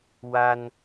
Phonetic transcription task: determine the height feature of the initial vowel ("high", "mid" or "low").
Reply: low